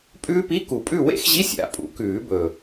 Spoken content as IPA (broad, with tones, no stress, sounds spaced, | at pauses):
pʼ ʉː˦˥ p i˧˥˧ k u˨˩˦ pʼ ʉ˥˨ w ḛ˦˥ x ʑ i˧˥˧ sʲ a̰˨˥ pʼ ṵ˨˥ k ʉː˨˩˦ b ɵ˨˩